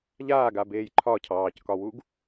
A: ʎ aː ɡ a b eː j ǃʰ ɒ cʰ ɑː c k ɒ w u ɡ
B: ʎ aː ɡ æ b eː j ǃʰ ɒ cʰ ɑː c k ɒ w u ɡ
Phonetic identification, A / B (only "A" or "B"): A